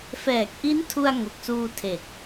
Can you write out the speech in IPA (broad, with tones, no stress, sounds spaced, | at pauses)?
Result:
f ɛː˨˩ k̚ ʔ i˦˥ n tʰ u˧ a̯ ŋ o˨˩ k̚ s uː˧ tʰ e˨˩ k̚